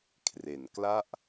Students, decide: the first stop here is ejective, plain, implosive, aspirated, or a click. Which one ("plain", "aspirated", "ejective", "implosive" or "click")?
aspirated